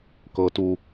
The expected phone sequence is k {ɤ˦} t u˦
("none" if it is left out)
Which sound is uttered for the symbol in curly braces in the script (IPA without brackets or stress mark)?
ɤ˦